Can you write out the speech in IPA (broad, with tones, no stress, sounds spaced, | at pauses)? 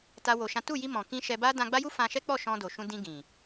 t a˦ w o˧ ʃ ã˦ t u˦˨ j i˧ m ɔ̃˨ k ĩ˧ ʃ ɛ˧ b a˦ d ã˧ ɡ͡b a˦ j u˦ f ã˧ ʃ ɛ˦ k͡p ɔ˦˨ ʃ ɔ̃˧ d o˨ ʃ ũ˧ d ĩ˧ ɡ ĩ˨